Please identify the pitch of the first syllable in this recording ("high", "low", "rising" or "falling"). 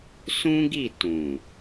high